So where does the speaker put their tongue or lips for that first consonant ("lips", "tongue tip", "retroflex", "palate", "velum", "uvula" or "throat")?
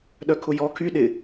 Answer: tongue tip